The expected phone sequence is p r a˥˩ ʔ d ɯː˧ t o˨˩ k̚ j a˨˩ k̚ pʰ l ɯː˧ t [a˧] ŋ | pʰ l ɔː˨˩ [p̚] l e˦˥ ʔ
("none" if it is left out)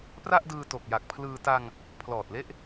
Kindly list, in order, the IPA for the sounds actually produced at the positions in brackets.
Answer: a˧, t̚

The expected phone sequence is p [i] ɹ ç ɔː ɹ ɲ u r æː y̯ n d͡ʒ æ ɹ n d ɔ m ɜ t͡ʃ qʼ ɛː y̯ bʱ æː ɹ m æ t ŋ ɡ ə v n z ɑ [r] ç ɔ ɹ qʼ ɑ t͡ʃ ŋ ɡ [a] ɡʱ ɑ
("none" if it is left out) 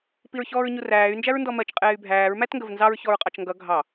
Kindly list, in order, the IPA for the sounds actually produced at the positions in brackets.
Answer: i, ɹ, ʌ

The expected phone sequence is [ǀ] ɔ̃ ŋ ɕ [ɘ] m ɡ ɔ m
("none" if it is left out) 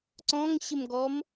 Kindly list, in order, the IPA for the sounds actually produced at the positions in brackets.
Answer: ǀ, ɘ

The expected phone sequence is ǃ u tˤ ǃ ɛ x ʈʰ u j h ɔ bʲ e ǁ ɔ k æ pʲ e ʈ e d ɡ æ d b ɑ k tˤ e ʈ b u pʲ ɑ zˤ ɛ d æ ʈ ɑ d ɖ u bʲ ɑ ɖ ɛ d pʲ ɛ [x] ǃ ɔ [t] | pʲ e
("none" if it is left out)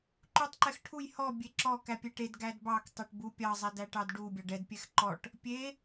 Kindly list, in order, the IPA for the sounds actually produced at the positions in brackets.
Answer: x, ʈ

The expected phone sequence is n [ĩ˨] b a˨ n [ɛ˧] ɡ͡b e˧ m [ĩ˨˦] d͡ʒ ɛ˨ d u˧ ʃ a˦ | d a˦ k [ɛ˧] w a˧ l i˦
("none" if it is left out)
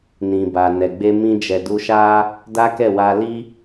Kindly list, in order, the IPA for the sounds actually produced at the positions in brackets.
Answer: ĩ˨, ɛ˨, ĩ˧, ɛ˦˨

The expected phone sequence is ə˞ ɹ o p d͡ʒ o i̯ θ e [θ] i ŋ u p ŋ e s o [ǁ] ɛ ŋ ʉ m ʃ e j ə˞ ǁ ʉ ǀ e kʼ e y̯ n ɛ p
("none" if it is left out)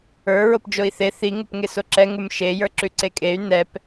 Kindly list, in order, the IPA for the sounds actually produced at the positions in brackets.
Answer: θ, ǁ

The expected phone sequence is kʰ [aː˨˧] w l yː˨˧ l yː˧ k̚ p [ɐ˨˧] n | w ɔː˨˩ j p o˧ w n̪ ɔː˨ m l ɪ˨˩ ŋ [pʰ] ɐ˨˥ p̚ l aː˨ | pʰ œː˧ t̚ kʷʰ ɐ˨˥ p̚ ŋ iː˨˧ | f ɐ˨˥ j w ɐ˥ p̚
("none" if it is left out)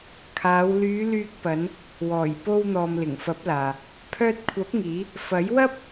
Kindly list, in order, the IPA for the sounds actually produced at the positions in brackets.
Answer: aː˨˧, ɐ˨˧, f

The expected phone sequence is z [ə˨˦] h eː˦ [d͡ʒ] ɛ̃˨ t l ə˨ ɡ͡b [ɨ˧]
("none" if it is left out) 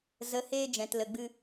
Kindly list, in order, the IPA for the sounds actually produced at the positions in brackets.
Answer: ə˨˦, d͡ʒ, ɨ˧

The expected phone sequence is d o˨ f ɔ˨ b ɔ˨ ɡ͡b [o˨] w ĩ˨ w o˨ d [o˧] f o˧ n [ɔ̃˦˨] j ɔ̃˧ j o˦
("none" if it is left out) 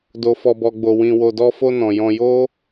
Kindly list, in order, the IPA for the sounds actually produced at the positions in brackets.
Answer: o˨, ɔ˧, ɔ̃˨

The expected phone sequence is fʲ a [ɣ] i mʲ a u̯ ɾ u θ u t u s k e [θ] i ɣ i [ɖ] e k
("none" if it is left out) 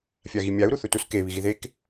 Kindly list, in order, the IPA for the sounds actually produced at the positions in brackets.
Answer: ɣ, β, ð

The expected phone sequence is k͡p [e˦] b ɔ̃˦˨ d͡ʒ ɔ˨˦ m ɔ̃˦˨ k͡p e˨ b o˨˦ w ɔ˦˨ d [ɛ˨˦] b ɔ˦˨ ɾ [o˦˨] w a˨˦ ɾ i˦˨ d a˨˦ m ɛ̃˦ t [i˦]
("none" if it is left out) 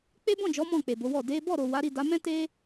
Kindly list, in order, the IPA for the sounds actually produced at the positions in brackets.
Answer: e˦, e˨˦, o˨, e˦

